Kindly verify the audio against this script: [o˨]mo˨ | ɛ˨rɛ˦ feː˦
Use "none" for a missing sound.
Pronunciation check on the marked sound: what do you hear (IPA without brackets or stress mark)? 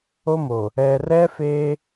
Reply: o˦